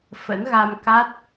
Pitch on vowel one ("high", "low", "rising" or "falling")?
rising